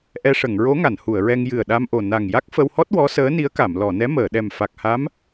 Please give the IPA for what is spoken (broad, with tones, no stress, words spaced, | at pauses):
ʔɛ˧ʂə˨˩˨ŋɹo˧˥ ŋa˨˩˨nhu˨˩˨ə̯ɹɛ˧ŋ jɨ˨˩ə̯ɗa˧mʔo˨˩ na˨˩ŋja˦˥k̚ fə˧whɔ˦˥t̚ wɔ˧˥səː˧˥ni˧˥ə̯ka˨˩˨m lɔ˨˩˨nɛ˧˥məː˨˩˨ ɗɛ˨˩mfa˨˩k̚ha˧˥m